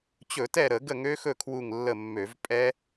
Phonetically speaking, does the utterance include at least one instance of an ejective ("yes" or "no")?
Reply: yes